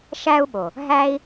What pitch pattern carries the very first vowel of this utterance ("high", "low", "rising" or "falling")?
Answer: high